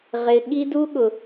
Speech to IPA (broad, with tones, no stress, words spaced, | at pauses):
ʁɪ˨ ɠi˦du˦ ɠʊ˨